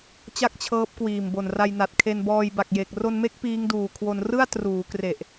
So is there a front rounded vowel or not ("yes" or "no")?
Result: no